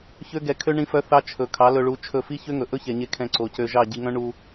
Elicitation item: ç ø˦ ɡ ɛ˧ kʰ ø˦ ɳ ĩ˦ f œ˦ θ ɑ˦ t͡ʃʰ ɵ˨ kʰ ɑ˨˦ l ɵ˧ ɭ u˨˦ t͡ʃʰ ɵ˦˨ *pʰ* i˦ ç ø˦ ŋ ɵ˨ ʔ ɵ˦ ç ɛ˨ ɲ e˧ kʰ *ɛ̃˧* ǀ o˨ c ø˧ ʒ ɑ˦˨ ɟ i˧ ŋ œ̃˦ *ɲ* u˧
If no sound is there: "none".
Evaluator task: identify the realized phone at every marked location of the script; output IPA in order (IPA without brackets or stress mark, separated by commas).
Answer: f, ɛ̃˧, ɳ